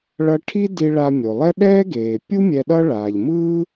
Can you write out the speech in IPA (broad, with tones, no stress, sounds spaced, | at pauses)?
ɭ ʌ˧ ʈʰ i˥ d i˧ ɭ a˧ mʲ o˩ lˠ ɛ˥ ɗ ɛː˥ ɡ eː˩ pʲ u˥ mʲ ɛ˧ ɗ ʌ˥ ɭ aː˩ ʎ m ɯː˥